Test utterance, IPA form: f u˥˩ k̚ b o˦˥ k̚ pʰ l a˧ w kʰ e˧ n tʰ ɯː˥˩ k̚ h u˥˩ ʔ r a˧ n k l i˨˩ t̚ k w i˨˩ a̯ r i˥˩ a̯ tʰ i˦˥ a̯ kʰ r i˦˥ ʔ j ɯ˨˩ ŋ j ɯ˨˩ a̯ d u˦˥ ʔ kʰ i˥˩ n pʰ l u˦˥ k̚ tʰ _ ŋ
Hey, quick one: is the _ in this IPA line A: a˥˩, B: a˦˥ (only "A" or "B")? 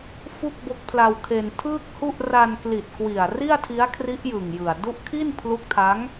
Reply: B